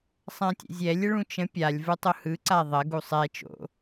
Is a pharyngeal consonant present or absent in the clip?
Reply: absent